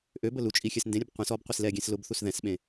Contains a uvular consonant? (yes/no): yes